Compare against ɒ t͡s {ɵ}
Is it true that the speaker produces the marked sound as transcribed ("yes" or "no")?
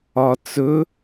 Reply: yes